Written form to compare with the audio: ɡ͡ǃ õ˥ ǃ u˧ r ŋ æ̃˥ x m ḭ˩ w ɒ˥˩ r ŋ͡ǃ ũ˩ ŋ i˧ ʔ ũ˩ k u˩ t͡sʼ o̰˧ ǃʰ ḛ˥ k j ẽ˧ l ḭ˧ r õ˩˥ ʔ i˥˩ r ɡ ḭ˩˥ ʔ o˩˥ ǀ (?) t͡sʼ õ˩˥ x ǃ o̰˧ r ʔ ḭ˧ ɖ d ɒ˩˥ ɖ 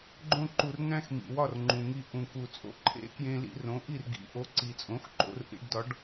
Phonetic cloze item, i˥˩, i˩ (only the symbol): i˩